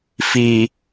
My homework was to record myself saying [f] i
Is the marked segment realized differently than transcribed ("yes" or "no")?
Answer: no